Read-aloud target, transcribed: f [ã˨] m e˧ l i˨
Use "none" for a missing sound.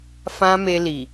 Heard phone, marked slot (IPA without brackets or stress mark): ã˦